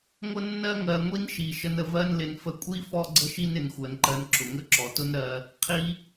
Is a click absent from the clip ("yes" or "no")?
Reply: no